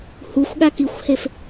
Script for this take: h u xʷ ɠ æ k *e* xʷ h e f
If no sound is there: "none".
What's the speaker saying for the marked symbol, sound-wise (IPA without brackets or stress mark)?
i